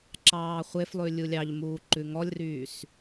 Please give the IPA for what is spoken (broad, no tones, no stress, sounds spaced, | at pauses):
ǁ ɑː χʷ e f lˠ ʉ lʲ u lʲ ɑ ʎ m uː ǃ ʉ ŋ ɔ lʲ r yː s